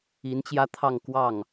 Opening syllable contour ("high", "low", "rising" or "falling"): rising